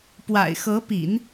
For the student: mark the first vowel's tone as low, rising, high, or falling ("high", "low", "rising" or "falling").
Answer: low